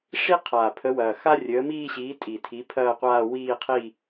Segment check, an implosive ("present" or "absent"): absent